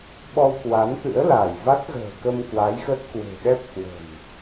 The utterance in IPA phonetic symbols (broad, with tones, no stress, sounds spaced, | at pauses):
ɓ ɔ˧ w k w a˨˦ n t̪ ɨ̰˧˥ ə̯ l a˧˩ j v a˦˥ t̚ ɣ ə̤ː˨˩ k ə˧ m k w a˨˦ j x ə˦˥ t̚ k w e̤˨˩ ɗ ɛ˦˥ p̚ k w ə̤˨˩ n